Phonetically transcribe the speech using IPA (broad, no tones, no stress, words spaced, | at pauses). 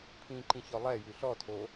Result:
pʰĩǃĩ çɔlˠɛjʉ ɬɔtʰo